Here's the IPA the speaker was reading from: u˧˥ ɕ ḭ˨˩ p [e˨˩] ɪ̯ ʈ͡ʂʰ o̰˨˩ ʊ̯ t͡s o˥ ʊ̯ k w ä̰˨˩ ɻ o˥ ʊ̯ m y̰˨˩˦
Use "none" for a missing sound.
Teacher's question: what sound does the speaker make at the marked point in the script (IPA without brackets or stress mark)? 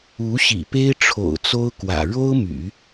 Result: e˥